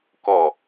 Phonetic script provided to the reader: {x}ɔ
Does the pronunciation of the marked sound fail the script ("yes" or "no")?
yes